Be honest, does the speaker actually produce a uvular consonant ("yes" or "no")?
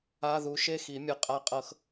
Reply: yes